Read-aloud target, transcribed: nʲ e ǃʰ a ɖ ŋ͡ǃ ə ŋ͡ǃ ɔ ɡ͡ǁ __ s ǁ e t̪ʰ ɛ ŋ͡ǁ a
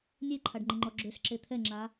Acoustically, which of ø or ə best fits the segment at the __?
ø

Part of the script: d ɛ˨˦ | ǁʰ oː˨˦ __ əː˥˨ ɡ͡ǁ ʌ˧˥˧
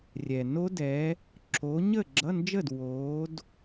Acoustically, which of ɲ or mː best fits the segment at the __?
ɲ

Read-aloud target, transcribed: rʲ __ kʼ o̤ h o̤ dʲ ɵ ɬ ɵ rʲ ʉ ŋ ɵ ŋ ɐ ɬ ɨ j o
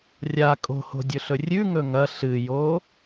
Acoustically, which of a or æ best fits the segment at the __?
a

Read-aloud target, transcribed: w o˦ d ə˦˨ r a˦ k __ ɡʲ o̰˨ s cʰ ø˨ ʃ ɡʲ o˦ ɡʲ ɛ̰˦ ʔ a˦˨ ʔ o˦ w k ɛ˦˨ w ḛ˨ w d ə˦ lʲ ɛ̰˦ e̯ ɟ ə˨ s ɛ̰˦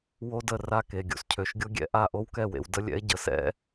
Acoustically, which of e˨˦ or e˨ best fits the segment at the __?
e˨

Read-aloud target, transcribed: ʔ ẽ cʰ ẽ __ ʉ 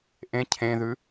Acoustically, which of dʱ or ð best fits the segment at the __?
ð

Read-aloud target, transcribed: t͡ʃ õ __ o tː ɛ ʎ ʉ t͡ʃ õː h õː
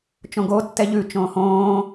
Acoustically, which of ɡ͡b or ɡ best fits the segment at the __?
ɡ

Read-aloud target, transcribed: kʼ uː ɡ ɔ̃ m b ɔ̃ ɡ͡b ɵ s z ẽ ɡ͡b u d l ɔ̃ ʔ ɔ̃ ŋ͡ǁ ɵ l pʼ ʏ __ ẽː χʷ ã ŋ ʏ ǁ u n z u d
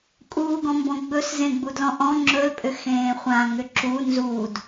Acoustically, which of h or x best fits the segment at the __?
x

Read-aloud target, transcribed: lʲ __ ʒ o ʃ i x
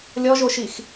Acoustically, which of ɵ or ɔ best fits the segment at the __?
ɔ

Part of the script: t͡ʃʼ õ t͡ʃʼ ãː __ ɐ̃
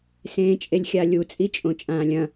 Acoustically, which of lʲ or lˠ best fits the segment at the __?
lʲ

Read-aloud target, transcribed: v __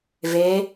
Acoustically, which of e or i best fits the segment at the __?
e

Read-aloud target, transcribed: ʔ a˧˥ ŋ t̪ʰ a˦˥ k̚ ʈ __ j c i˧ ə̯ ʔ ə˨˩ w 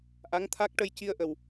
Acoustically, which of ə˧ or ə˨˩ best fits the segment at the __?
ə˧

